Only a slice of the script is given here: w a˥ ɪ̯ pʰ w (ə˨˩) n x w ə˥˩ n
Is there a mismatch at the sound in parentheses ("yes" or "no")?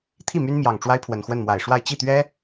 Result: no